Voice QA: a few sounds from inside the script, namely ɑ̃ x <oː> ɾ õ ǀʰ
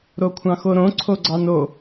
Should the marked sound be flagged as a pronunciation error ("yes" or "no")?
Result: yes